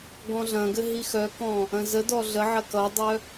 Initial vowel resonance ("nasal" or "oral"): nasal